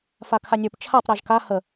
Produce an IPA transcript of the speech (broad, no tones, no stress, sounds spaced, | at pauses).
f a kʰ a nʲ ə˞ p t͡ʃʰ a tˤ ɾ a ʒ k a h ə